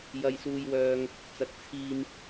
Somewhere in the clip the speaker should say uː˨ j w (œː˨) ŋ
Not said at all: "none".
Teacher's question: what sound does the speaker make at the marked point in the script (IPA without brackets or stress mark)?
œː˨